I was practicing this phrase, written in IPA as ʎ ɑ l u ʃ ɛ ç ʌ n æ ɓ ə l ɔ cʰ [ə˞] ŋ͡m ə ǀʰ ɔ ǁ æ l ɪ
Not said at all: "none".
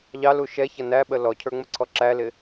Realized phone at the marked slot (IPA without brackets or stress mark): ə˞